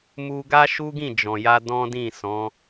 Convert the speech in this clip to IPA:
mu˧ɡa˦ʃu˦ɡĩ˦˨ d͡ʒɔ̃˨ja˧ dɔ̃˦dĩ˦˨sɔ̃˨˦

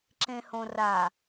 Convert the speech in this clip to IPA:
ǁẽhõra

